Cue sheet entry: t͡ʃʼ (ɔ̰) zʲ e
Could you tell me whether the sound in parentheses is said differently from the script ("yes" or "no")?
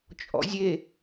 no